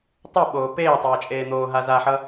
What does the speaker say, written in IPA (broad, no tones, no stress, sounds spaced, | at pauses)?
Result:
tˤ u ɓ oː p eː tˤ ʌː t͡ʃʼ eː n̪ oː ɦ a z a ħ ʌ